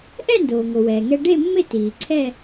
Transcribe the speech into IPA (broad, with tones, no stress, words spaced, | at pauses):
ʔɛ˥˧ndoː˩ŋo˩ wɛː˩ŋɛ˧ ɖe˥˧mːɪ˥˧ tiː˩ǀʰɛ˥˧